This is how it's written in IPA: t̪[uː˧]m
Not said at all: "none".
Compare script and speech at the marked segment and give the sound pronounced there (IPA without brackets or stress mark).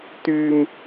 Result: yː˧